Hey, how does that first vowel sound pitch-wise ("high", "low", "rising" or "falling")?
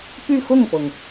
falling